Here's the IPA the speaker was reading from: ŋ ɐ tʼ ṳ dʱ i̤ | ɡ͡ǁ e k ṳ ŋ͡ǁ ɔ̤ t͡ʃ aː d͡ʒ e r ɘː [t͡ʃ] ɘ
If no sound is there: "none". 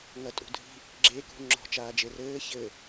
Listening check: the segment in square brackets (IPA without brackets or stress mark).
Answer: ç